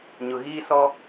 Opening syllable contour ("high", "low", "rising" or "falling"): low